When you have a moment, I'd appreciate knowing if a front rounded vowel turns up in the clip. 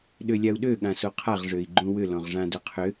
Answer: yes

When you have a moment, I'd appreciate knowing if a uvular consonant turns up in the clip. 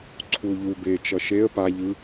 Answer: no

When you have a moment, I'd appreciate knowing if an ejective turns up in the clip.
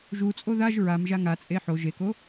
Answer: yes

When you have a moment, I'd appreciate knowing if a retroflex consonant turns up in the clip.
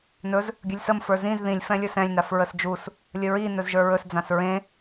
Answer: no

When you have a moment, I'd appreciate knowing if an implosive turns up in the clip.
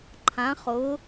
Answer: no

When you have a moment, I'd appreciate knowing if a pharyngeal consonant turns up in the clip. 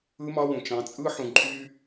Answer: yes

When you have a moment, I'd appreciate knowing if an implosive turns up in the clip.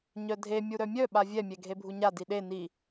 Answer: yes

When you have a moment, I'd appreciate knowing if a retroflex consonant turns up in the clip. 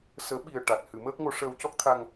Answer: yes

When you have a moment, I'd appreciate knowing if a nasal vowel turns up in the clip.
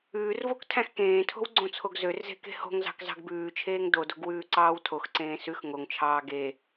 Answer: yes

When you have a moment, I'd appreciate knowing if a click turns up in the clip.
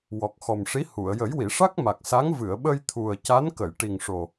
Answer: no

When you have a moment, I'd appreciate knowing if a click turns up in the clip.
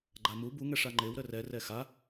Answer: yes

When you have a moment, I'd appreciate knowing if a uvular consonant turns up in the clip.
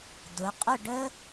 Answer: yes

